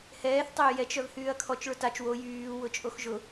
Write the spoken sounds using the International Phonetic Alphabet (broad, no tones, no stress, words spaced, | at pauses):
hɛːθ tˤʏːjɛt͡ʃ œvhyːɐ̯kʰɔt͡ʃ ɭʊtat͡ʃ wo jyː wʊt͡ʃʼoxʒʊ